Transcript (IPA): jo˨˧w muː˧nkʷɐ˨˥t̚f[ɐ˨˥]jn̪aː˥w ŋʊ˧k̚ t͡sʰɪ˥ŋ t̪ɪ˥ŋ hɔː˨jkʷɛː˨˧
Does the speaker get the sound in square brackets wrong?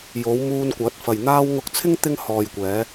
yes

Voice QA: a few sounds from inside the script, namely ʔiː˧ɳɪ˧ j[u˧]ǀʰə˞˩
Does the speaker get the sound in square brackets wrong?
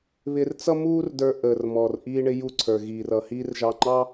no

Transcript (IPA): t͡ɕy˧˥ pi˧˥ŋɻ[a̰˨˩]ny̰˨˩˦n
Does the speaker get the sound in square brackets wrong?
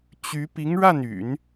yes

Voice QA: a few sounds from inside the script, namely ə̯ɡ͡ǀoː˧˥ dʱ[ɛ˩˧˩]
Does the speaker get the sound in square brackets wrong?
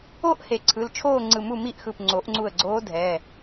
no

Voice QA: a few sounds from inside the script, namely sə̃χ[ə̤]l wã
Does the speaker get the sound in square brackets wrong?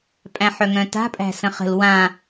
no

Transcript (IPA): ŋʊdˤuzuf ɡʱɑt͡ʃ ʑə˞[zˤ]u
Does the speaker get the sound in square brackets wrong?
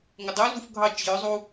no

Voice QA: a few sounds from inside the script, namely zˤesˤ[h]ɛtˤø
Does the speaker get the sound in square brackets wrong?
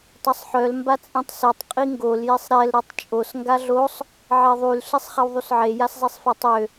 yes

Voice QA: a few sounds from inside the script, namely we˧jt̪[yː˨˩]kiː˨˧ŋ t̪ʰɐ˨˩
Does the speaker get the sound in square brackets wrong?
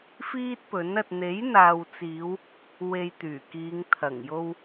no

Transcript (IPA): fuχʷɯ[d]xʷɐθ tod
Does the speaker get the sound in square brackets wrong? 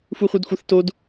no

